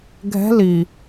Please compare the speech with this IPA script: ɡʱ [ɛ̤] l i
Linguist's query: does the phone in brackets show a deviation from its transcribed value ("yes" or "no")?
no